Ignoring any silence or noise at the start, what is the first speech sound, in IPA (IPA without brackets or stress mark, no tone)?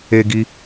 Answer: e